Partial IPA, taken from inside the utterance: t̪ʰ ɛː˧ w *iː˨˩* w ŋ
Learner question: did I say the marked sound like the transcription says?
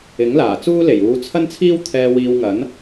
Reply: no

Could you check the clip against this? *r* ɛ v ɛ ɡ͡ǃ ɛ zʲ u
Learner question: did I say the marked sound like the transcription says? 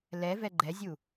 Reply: no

